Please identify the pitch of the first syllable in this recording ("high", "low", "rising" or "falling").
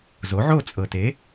rising